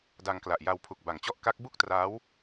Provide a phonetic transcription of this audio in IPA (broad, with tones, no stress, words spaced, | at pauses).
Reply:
da˧ŋkla˨˩ʔja˧wpʰu˨˩k̚ ba˨˩ŋt͡ɕɔ˥˩ʔ ka˦˥k̚ bu˥˩k̚traː˦˥w